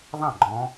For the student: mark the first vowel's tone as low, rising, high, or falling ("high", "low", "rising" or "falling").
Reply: falling